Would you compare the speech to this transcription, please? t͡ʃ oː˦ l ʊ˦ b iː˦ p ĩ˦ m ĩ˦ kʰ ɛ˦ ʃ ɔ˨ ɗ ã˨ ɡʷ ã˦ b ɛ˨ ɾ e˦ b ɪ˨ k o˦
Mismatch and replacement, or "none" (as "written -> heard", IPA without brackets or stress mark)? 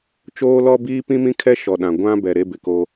ʊ˦ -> ɔ˦